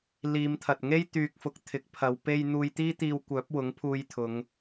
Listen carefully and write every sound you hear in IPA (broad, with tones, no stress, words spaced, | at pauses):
liː˨˧mt̪ʰɐ˨t̚ŋe˥j t̪yː˨k̚fʊ˨k̚ t̪ʰɪ˨˥k̚pʰɐ˨˧w pe˧j n̪uː˧jt̪iː˥t̪iː˧w kʷœː˨˥p̚wʊ˨˥ŋpʰuː˧jt̪ʰʊ˨˧ŋ